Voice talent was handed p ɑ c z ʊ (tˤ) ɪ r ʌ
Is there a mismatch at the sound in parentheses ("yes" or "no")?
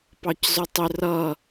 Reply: no